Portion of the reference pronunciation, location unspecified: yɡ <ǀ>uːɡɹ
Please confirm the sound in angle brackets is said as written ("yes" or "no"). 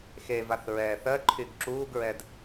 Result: no